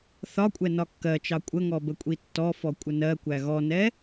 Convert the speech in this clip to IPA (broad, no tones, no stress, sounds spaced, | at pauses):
θ ɒ kʷʼ ɛ n ɒ kː ɜ t͡ʃ ɑ kʷʼ ə ŋ ɔ b ə kʷʼ i tː ɔ f ɔ kʷʼ ə n ɜ kʷ æ ɣ ɔ n ɛ